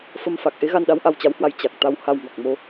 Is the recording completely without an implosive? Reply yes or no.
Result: no